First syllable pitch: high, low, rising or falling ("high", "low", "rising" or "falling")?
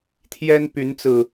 high